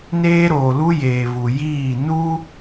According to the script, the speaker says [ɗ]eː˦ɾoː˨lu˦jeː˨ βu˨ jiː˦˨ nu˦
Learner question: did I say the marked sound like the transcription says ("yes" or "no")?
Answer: no